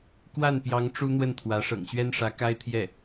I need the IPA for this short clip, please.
kwa˥˩npjɑ˧˥ŋ ʈ͡ʂu˥n̪wə˥˩nt̪ʰwä˧˥ ʂɤ̰˨˩ŋɕɥɛ˥nʂä˧˥ ka˥ɪ̯t̪ʰjɛ˥˩

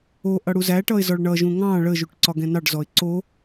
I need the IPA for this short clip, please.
oʔʌ ɽuzæʈʌɪ̯ zɔɭɳʌʒũ ŋɑ̃ ɭəʒuʈ ǀɒɡɛ̃nɑɖzɔɪ̯ ǀo

